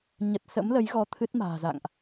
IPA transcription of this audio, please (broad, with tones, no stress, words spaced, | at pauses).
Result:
ɲə˨˩t̚sə̰˧˥mlə˨˦j ɣɔ˧t̪ʰɨ˦˥t̚ ma̤ː˨˩za̰˧˨ŋʔ